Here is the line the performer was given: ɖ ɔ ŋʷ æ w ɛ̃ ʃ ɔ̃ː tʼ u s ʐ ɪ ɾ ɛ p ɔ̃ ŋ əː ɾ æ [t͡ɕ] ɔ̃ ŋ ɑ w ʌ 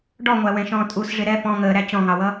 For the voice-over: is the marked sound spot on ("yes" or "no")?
yes